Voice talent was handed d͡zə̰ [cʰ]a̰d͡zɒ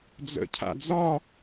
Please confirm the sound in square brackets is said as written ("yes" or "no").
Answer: yes